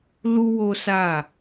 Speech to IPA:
lu˦wo˦sa˦˨

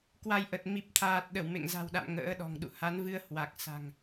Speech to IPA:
kwa˧jʔə˨˩t̚ mi˨˩p̚t̪ʰaː˨˩t̚ɗə˧˩w mḛ˧˨ŋza̤˨˩wɗa̰˧˨m ŋə̰ː˧˥ɗɔ̤˨˩ŋɗṵ˧˨ ha˨˦nvɨ˧ə̯ hwa˨˩k̚sa̤˨˩ŋ

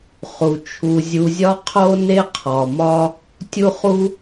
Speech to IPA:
χu˩ t͡ʃʰu˨zʲu˨zʲɒ˦ qʰo˥ ne˥qʰɒ˩mɒ˦ | tʲu˦χu˦

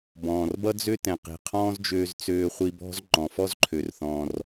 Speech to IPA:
bɔ̃ː˩rbʌ˥d͡zø˥tɛ̃˩ qi̤˩qʰɔ̃ː˥zd͡ʒøː˧z t͡søː˧χʷi˧bɔ̤˥z ŋ͡ǃɔ̃˩fɔ˥z ǃʰø˩rθɔ̃ː˩r

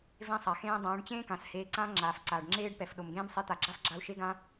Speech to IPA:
vẽ˦sˤa˨xẽː˦ dˤãː˨˦ɖt͡ɕẽː˦ kã˨sheː˧ǀãː˦ ŋ͡ǁaː˧fǀaː˧ɖ ŋ͡ǁeː˦ɖpɛ˨fɗo˨mɡẽː˦m sˤe˧t̪a˨ɡ͡ǁa˦fɡ͡ǁa˧u̯ ʃe˦ɡã˦

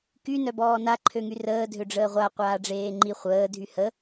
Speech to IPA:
ky nœbɔːna ǃʰøŋyrəː dʱøɖ͡ʐəːʁʷa qʷaːɖ͡ʐeːŋ͡ǃi χʷəː dʱyhə

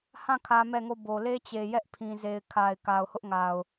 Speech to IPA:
hã˦˨ kʰä˦mɛ˦˨ŋo˦˨bo˨ le˦t͡ɕe˨ jɛ˦ʔ pʰĩ˨ ze˨ɪ̯kʰa˨ɪ̯ ka˨ʊ̯hʊ˦ʔŋa˨ʊ̯

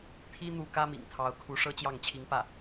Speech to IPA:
t̪ʰi˥ n̪u˥˩ kä˥mḭ˨˩ŋ t̪ʰɑ˧˥ʊ̯kʰu˧˥ ʂɤ˥t͡ɕjɑ˥˩ŋt͡ɕʰi˧˥ŋpä˥˩

